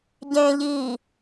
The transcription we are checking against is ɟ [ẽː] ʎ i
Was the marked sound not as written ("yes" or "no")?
no